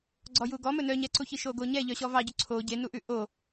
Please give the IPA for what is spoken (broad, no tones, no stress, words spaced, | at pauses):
ɡ͡ǀɔjuɡɔmɵ nœɲɛǀuçi ʃoɡoɲɛ ʎœɕɔvɑɟʉ ǀʰo ɟenuʔʉ ʔo